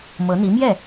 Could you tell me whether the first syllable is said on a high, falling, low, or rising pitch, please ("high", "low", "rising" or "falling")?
rising